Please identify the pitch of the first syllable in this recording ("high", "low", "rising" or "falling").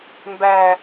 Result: low